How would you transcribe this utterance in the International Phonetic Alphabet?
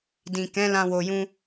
d ĩ˨ k ɛ̃˨˦ l ã˧ w o˨ j ũ˧

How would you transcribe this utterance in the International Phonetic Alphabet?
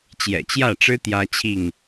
t͡ɕ j ɛ̰˨˩ t͡ɕ j ä˥˨ ʈ͡ʂ ɻ̩˦ t̪ j ä˦ t͡ɕʰ i˥˨ ŋ

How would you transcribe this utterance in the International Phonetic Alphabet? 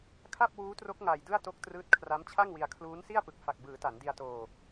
kʰ a˥˩ p̚ w uː˦˥ t r o˦˥ k̚ ŋ a˧ j d ɯ˥˩ a̯ t o˦˥ k̚ t r ɯː˦˥ t̚ kʰ r a˦˥ m t͡ɕʰ a˥˩ ŋ w i˧ a̯ kʰ l uː˦˥ n s i˥˩ a̯ p ɯ˨˩ k̚ f a˨˩ k̚ b ɯː˩˦ t a˩˦ n d i˧ a̯ t oː˧

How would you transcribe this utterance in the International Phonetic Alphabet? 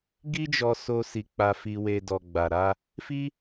ɡ i˦ d͡ʒ ɔ˧ s o˧ s i˨ k͡p a˧ f i˧ w e˧ d ɔ˨ ɡ͡b a˨ ɾ a˧ | f i˦

